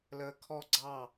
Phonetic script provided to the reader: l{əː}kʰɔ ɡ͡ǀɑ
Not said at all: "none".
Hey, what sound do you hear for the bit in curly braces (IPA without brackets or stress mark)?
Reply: əː